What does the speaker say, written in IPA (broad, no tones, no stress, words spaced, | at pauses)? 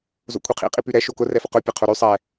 zo̰kʷʰiqʰḭ qʼipyɾɛ ʃokʊ rɛfʊqʊ pʲɛqʰoɾy sˤɛ